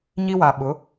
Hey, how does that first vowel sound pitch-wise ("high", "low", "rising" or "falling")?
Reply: high